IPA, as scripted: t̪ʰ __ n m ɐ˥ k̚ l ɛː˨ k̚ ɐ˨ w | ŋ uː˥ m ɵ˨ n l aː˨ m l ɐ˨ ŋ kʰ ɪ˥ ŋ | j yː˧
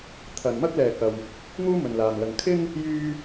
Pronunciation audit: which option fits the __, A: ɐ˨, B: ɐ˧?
A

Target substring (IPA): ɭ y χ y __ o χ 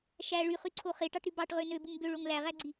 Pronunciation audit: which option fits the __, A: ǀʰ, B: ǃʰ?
A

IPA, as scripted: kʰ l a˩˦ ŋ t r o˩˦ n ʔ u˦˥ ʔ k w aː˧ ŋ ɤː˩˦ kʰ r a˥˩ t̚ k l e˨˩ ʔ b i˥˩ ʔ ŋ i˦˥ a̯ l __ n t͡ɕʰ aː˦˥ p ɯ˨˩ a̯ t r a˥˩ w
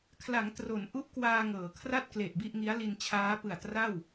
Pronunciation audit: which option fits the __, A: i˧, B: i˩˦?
A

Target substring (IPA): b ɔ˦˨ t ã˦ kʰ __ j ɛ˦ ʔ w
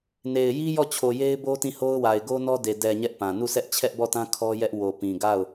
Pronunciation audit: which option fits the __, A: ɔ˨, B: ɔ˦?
B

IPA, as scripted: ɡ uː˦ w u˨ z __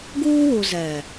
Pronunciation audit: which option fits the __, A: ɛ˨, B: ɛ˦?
A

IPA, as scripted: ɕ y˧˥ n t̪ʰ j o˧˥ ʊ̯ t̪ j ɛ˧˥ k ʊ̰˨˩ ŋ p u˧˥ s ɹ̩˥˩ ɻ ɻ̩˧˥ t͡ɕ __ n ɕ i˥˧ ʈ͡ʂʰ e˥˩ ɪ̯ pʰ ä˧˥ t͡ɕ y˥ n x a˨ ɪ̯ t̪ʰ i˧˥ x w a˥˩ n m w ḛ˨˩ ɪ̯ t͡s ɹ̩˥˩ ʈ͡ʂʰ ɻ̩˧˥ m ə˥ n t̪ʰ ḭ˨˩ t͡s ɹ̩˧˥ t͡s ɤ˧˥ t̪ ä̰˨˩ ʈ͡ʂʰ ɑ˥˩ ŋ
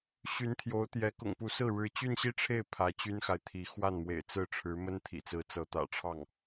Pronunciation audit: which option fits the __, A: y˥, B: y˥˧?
B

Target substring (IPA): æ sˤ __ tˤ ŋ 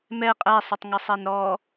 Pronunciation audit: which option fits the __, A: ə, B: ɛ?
A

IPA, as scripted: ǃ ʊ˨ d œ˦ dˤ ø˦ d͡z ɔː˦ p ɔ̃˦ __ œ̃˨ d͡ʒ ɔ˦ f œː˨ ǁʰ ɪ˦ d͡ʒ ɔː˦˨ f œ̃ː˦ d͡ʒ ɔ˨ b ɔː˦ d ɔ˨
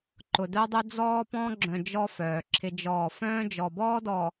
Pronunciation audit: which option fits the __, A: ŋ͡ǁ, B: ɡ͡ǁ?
B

